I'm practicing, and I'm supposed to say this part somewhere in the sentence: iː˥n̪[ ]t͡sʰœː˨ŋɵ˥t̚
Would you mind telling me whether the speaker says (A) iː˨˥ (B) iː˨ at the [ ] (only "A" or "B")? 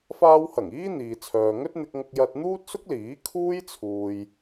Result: B